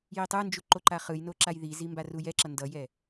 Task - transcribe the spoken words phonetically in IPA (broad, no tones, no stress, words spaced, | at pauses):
jitˤɯnd͡ʒu ǃoǃaχɯjno ǁajðizi mbarujɛǁʌ ndʌjɛ